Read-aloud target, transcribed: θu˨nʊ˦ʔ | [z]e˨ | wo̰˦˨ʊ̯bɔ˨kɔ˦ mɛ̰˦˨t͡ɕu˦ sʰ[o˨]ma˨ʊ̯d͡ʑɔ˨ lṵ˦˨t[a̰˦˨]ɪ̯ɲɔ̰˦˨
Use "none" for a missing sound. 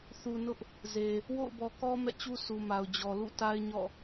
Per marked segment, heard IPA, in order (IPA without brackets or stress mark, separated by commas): z, u˨, a˦